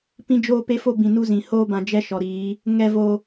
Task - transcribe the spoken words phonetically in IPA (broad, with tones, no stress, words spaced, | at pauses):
pĩ˦d͡ʒoː˦ pe˦fo˦ bĩ˨ nu˦zĩ˨ hoː˦bã˨ d͡ʒɛ˦ʃɔ˨ɾiː˨˦ | ŋɛ˦vo˦